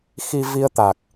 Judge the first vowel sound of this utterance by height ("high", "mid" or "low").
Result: high